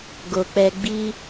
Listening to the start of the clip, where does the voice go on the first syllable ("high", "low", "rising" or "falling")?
low